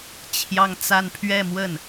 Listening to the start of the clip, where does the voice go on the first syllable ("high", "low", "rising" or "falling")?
high